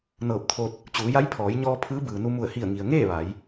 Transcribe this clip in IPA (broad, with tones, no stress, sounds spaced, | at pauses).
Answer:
n ɤː˧˩ p̚ t̪ʰ o˧ t̚ | t͡ɕ uː˩˧ j a˧˥ j pʰ ɔː˩˧ j ɲ ɔː˧ pʰ ɯː˧˥ b ɯː˩ n u˧ m u˧˩ ə̯ h i˧˩ ə̯ ŋ i˩ ə̯ ŋ eː˥˨ ʋ a˩˧ j